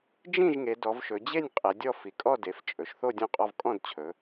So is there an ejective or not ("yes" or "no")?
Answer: yes